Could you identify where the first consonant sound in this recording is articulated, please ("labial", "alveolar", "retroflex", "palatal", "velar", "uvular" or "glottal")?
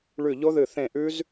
retroflex